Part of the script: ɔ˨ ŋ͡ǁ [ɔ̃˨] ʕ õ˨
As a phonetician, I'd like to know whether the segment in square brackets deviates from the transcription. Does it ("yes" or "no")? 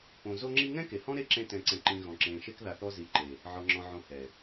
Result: no